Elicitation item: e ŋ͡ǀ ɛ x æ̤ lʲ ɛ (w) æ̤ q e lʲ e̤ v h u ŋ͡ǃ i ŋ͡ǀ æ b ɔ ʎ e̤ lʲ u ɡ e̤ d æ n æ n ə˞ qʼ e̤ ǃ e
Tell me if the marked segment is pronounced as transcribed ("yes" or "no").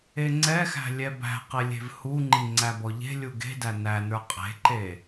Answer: no